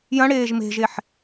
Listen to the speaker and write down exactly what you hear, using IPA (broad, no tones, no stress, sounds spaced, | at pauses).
j ɐ̃ ɽ eː ʒ m e̤ ʒ e ħ